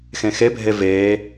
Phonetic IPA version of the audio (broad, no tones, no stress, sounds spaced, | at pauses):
x ẽ x e bʱ e v eː